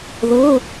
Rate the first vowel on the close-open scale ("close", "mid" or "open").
mid